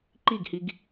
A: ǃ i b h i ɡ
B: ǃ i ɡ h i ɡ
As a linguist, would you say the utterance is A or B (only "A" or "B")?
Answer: B